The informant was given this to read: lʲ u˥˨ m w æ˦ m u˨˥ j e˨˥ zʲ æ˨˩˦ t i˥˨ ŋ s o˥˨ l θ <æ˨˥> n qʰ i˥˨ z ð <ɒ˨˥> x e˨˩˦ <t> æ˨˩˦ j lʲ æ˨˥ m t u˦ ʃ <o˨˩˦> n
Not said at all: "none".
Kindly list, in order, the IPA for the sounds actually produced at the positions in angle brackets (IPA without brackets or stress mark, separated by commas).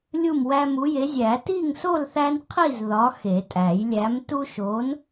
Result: æ˦, ɒ˨˥, tʼ, o˨˥